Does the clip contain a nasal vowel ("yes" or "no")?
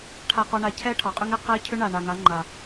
no